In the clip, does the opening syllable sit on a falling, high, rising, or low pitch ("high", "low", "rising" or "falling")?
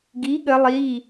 rising